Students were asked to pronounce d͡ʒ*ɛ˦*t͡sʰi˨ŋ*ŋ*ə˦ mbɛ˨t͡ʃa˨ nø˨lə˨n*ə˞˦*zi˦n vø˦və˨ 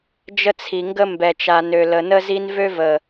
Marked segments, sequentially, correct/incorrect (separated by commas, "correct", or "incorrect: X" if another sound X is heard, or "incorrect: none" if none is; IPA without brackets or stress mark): incorrect: ə˦, incorrect: ɡ, incorrect: ə˦